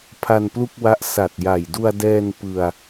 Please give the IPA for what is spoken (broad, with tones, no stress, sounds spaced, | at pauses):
pʰ a˧ n p l u˥˩ k̚ w a˦˥ ʔ s a˨˩ t̚ j a˨˩ j d u˧ a̯ d ɛː˧ n p ɯ˧ a̯